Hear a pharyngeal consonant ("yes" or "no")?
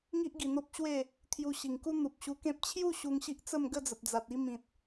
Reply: no